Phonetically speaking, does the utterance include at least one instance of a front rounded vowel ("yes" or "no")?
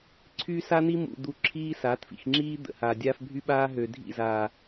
yes